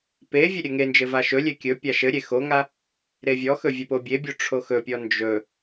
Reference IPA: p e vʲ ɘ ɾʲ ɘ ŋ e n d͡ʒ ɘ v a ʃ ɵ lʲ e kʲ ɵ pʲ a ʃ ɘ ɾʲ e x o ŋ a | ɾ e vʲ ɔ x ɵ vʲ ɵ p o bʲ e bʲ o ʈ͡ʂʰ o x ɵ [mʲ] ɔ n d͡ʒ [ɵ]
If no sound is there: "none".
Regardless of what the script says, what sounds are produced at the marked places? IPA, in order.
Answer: pʲ, ɵ

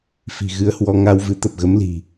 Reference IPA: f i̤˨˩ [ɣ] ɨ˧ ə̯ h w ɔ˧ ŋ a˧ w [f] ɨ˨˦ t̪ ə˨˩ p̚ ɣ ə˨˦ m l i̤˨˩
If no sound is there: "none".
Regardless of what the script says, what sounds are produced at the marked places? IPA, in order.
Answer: ɣ, v

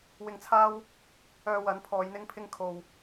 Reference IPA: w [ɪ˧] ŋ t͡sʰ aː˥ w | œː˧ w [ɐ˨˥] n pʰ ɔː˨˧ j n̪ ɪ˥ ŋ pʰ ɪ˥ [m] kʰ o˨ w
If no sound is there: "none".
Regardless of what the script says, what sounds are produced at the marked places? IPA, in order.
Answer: ɪ˧, ɐ˨˥, ŋ

